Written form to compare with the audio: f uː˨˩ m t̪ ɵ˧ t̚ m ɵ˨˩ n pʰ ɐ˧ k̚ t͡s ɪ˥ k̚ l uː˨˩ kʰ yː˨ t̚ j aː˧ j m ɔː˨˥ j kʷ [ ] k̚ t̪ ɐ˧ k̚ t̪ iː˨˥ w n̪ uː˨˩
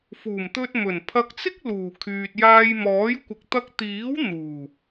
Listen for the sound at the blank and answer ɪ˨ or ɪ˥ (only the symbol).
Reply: ɪ˨